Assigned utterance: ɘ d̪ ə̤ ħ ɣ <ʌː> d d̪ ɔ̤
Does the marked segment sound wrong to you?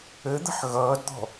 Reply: no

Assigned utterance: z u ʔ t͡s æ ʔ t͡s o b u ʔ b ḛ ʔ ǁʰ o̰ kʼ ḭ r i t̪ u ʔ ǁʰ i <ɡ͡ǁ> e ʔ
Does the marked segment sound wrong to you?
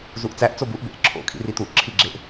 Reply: no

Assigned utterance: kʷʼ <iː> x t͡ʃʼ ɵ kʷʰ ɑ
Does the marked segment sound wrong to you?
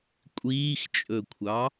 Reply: no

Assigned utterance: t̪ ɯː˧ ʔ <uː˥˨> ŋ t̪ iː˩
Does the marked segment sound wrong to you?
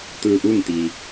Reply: no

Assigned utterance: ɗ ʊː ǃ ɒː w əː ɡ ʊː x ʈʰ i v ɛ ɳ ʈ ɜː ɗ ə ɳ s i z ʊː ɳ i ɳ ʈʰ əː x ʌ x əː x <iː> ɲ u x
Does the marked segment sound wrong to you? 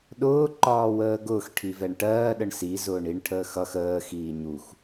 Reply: no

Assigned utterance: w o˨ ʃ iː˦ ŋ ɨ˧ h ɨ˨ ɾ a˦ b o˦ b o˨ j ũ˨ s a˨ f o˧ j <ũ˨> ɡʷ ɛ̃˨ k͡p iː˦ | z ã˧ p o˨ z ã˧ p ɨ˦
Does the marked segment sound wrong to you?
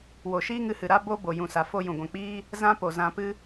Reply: no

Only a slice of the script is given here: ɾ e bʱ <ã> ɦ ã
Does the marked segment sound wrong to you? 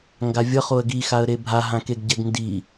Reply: yes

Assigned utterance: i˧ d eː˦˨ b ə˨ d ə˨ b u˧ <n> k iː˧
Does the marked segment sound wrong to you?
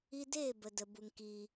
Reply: yes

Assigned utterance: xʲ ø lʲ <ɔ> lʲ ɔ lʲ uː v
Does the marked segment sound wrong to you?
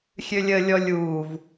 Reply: yes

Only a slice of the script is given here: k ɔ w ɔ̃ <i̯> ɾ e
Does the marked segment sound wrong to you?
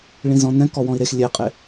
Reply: no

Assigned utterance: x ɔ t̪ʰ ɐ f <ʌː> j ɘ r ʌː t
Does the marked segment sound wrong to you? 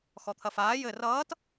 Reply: yes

